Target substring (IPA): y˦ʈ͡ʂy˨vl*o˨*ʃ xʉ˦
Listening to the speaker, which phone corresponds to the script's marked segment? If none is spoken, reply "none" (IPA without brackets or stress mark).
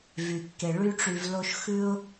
o˦